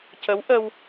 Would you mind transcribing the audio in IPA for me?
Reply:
c ə˧˥ w ʔ ə˧ w

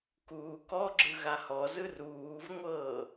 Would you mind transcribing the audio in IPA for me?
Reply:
k uː k ɔ ɡ͡ǁ ɯ ɣ a h ɔ z ɯ r uː v ŋʷ ɤː

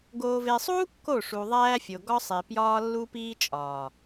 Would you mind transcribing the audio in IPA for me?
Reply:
ɡ oː˨ v e˨ sˤ uː˦ kː o˦˨ ʂ u˨ ðˤ æː˦ fʲ o˨ ɡ ɒ˦ sˤ e˨ p j ɒː˦ lː u˦ p iː˦ t͡ʃʼ ɒː˨

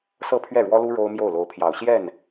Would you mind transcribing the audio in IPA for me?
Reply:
s ɤ˥˧ pʰ ɥ ɛ˥˩ ɻ w ɔ˥ l u˥ ɻ o˥ ʊ̯ m j o˥˩ ʊ̯ l o˧˥ ʊ̯ pʰ j ɑ˨˩ ʊ̯ ɕ j ɛ˥˩ n

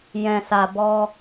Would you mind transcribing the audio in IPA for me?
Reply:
j ɛ̃˨ s a˨ b ɔ˧

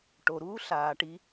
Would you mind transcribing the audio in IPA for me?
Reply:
ʈ o˨ ɾ uː˦ ɬ aː˨ ʈ i˧

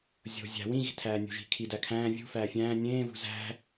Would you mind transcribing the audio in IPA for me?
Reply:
zʲ o̤ zʲ æ̤ w ĩ ɣ i̤ tʰ æː nʲ o̤ ʒ i̤ kʰ i d æ kʰ æ̃ː vʲ ṳ f æː fʲ æ̃ː nʲ ẽː v ṳ z æ̤

